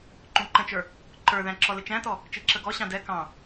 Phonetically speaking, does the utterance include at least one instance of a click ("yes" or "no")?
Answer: yes